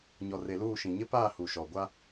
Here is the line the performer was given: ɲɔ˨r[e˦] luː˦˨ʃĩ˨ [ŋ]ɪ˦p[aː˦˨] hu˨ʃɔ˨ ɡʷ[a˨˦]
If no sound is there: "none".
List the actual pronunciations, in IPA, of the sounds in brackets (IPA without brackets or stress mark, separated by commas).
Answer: e˨, ɲ, aː˦˨, a˦